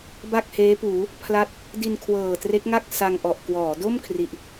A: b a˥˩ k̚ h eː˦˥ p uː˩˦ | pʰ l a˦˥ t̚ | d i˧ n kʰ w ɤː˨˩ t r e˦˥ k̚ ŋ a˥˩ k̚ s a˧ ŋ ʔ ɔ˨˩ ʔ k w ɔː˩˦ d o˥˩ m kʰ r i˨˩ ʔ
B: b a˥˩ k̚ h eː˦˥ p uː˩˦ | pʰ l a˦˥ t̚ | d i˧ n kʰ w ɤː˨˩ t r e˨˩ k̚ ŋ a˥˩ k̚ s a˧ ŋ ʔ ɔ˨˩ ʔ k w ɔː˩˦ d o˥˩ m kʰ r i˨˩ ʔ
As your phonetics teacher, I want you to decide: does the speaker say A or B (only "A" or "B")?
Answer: A